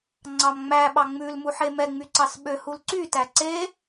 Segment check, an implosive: present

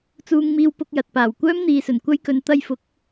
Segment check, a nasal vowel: absent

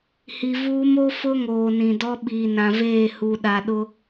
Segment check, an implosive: present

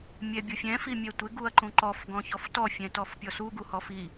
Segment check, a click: present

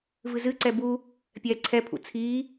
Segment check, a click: present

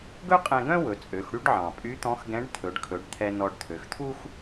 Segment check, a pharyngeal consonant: present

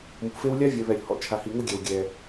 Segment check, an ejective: absent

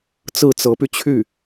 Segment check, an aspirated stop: present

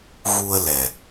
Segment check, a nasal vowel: absent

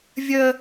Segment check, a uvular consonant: absent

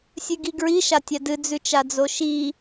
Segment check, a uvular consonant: absent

